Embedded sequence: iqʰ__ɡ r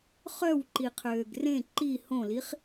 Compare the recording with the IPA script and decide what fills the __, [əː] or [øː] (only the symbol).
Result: øː